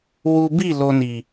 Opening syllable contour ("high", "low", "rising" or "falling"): high